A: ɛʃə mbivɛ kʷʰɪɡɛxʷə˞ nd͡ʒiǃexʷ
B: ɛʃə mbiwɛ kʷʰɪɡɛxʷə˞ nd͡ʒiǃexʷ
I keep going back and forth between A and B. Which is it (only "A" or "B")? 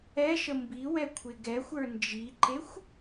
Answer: B